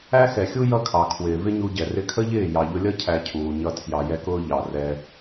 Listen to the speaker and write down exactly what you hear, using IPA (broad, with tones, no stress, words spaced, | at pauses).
æ˦xɛ˨xʲu˦ jʌ˦kʰɑ˨ kʰwɪː˨vɪ˦ɲu˧ɟɛ˨ rɪ˧kʰə˦ʎɪː˦˨ jɑ˨ʎʊ˧lʲʌ˦ cʰæ˧cʰuː˨ɲʌ˧ tʰjɑ˨jɛ˧kʊː˧ ʎɑ˨ rɛ˧